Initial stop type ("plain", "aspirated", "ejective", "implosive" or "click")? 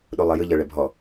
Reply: implosive